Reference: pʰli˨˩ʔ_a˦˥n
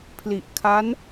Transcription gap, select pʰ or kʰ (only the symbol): kʰ